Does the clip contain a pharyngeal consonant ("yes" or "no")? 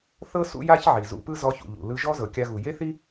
yes